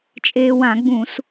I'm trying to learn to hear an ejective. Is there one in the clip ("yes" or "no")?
yes